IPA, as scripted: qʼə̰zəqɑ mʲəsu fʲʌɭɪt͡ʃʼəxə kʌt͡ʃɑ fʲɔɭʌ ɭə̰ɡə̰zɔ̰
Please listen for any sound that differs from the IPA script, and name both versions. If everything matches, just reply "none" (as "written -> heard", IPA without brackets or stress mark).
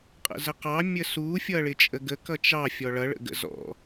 x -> ɡ